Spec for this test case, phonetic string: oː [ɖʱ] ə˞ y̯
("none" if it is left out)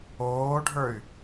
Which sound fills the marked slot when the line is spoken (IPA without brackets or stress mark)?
ɖʱ